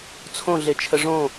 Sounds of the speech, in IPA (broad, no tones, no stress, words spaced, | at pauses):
t͡sʰõɮet͡ʃʰə ʐõ